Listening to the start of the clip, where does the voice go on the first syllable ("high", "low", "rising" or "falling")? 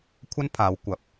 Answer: high